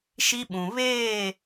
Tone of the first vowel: high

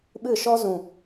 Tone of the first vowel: falling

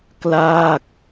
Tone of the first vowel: falling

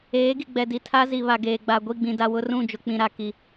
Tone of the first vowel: rising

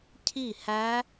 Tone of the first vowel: falling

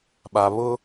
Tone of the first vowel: low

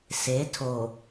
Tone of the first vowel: rising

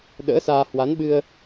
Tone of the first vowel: rising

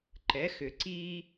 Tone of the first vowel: rising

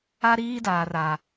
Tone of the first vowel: high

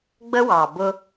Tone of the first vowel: high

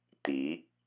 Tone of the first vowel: rising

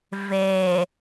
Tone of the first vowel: low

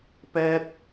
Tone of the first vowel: high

